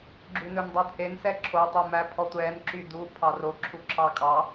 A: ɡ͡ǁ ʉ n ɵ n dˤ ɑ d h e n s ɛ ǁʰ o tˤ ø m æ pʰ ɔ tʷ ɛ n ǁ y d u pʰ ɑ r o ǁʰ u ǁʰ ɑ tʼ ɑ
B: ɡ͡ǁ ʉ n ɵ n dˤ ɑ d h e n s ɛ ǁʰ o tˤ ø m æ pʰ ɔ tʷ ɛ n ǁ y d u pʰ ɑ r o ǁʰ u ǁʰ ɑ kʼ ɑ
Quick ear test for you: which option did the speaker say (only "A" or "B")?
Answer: B